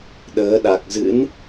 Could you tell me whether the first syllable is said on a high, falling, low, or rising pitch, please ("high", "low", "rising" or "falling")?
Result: rising